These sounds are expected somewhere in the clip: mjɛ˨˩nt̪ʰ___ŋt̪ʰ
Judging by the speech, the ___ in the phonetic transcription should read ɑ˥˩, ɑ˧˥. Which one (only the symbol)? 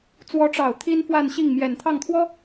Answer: ɑ˥˩